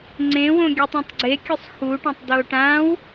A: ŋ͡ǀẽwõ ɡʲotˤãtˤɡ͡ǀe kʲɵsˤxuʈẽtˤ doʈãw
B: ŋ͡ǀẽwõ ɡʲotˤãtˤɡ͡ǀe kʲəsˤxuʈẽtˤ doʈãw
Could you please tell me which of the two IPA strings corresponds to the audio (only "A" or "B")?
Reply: A